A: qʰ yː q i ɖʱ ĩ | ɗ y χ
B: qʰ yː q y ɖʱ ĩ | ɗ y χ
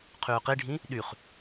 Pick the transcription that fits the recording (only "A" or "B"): A